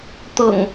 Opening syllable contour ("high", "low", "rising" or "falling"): low